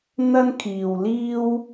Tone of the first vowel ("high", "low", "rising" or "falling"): high